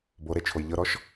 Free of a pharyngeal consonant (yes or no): yes